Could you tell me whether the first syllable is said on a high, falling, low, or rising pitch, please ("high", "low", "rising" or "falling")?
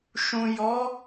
low